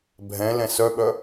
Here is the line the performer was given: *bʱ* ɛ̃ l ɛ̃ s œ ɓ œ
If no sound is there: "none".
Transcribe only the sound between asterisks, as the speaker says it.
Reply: bʱ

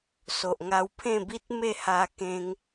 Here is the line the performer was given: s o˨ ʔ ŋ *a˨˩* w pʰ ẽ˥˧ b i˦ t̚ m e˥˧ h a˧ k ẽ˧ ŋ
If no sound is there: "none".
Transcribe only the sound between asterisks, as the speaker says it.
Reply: a˧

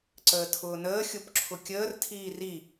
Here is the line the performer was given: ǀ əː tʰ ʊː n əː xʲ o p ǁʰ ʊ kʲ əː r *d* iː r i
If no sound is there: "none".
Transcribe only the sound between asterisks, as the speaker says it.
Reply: tʰ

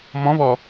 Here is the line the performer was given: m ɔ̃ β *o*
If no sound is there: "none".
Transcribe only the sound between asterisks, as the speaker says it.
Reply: ɔ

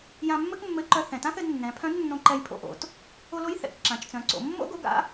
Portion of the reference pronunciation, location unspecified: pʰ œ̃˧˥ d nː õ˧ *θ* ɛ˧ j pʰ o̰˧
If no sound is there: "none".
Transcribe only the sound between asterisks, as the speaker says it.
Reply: ǃ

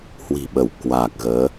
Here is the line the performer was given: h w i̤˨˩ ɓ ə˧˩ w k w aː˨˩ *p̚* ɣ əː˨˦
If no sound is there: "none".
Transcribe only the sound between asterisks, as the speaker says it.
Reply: k̚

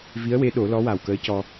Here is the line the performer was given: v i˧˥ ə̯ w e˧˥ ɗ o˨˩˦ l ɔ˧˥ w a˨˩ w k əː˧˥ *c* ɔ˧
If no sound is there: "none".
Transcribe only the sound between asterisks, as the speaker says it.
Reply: c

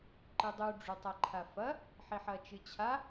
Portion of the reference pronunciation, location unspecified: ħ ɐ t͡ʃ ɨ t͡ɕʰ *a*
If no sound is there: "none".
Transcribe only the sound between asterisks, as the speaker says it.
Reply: a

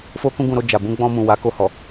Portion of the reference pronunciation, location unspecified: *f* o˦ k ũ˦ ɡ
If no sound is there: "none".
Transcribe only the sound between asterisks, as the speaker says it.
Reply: f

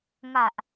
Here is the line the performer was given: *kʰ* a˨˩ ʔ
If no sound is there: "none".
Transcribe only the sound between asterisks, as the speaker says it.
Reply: ŋ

